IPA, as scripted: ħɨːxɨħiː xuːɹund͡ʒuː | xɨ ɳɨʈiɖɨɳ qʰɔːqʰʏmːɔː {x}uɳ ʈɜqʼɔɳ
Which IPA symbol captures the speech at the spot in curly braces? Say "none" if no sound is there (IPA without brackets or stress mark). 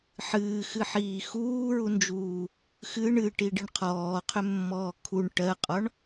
kʰ